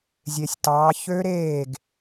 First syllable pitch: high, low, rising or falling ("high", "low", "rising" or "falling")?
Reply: low